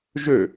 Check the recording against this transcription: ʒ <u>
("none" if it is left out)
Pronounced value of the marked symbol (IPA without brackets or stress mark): ø